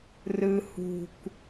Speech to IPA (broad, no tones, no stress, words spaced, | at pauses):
rɯ hṳk